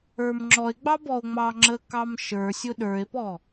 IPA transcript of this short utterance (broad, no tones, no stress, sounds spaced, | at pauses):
ə˞ m ŋ͡ǁ ɔ e̯ ɡ͡b ɑ b ɔ o̯ ŋ͡m ɑ ŋ͡ǁ ə k ɑ m ʃ ə˞ sʲ ʊ ɗ ə˞ e̯ p ɔ